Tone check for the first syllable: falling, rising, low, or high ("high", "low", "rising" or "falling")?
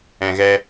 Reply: low